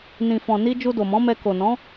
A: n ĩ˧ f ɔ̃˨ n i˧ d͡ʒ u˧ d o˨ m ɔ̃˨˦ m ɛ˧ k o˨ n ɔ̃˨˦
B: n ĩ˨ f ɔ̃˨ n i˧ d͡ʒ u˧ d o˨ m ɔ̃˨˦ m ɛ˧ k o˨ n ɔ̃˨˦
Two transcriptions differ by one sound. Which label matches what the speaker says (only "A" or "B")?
B